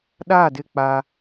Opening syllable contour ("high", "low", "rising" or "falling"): falling